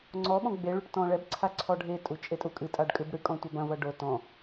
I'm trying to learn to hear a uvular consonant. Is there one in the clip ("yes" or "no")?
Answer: no